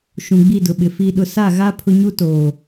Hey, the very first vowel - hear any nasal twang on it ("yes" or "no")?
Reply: yes